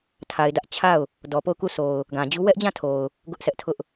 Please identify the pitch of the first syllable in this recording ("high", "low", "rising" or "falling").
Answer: low